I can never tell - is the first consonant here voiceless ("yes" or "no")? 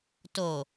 yes